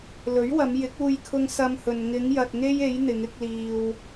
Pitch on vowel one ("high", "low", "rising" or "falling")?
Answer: rising